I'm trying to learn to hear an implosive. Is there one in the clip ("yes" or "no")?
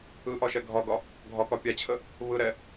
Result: no